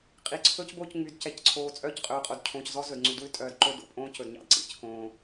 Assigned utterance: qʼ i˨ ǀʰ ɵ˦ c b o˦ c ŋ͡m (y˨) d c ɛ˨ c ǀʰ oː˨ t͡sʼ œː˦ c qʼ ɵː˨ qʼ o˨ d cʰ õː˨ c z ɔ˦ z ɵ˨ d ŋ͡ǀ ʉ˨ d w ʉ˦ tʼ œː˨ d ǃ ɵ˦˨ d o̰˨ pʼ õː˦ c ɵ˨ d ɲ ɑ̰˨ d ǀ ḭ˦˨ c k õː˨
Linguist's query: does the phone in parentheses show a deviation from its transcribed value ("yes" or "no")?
no